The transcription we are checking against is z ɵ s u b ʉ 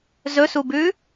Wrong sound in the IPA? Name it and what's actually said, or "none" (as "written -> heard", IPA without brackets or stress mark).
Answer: none